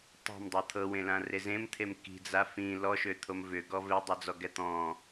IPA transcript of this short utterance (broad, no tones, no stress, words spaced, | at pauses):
tˤe̤mdˤɤ t̪ʰɤwẽlãre zẽmt̪ʰem ki̤d͡za fĩ lɔʃøt̪ʰom vʏɡɔ vedˤod͡zɔɡɛ t̪ɔ̃